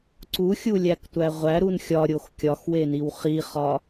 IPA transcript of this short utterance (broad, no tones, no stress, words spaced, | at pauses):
ǀuxʲulʲæktʷæ ʁʷæɾun xʲɒɾʲox kʲɒxweniw χiχɒ